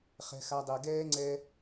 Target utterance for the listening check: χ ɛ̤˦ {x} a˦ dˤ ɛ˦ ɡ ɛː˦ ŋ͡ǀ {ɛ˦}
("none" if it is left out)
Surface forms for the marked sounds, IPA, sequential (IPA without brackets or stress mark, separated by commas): x, ɛ˦